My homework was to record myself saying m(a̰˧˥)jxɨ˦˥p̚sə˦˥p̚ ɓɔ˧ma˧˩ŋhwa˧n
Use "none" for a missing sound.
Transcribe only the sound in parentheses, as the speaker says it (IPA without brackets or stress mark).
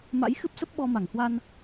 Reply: a̰˧˥